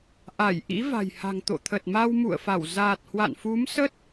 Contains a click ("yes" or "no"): no